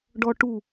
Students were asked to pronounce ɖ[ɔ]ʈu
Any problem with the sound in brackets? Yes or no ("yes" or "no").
no